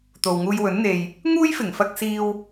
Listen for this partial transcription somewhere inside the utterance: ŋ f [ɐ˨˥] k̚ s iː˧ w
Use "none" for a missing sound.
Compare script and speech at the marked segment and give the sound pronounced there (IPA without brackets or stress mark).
ɐ˧